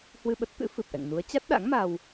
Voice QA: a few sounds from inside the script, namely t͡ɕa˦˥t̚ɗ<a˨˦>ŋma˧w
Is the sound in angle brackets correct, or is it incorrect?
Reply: incorrect